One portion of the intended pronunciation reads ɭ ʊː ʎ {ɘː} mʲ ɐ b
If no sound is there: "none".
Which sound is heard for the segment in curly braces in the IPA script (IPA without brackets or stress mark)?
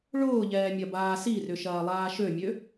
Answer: ɛː